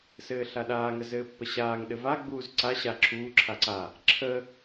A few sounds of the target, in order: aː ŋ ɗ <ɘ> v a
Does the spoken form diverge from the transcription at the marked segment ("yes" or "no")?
no